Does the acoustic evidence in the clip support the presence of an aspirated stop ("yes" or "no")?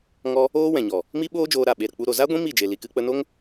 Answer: no